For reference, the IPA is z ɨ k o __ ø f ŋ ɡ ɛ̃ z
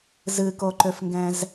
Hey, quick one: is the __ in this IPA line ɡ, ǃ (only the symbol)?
ǃ